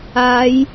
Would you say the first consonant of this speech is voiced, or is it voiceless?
voiced